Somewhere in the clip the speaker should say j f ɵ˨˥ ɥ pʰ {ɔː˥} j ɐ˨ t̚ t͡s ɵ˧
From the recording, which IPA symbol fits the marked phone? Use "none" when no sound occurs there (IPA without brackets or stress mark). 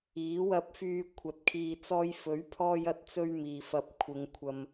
ɔː˧